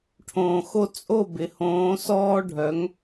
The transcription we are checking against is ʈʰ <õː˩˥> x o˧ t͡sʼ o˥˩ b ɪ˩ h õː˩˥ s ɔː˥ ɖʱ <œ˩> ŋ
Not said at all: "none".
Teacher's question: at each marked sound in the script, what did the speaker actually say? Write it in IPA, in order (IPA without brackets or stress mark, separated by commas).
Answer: õː˩, œ˩˥